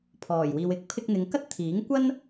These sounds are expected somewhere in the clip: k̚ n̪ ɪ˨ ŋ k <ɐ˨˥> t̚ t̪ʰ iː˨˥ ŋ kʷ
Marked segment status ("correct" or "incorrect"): incorrect